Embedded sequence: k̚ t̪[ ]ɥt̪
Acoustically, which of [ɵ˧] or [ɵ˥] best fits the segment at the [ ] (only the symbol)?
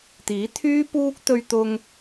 ɵ˧